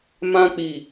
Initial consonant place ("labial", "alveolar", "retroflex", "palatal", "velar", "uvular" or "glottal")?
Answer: labial